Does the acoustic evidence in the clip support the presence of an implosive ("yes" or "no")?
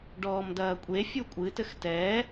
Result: no